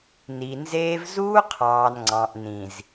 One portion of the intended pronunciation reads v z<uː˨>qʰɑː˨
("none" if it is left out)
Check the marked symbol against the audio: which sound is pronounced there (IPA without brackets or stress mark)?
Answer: uː˦